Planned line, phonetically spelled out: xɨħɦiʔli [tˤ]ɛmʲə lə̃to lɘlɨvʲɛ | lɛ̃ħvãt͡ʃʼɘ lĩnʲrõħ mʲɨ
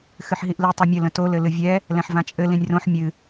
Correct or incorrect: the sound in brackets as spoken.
correct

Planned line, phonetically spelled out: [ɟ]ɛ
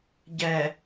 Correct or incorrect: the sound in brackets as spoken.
correct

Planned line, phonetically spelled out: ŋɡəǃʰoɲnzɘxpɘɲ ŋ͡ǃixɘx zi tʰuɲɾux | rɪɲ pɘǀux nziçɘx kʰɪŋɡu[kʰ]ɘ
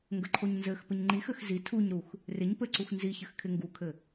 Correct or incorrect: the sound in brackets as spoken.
correct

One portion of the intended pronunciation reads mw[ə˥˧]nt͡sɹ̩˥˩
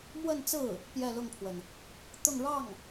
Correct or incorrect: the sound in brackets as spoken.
correct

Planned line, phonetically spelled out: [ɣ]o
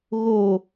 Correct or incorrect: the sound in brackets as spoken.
correct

